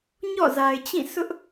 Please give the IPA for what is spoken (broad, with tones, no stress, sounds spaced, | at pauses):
ɲ ɔ̰˦˨ z a˨ ɪ̯ t͡ɕ ĩ˦˨ s ʊ˦ ʔ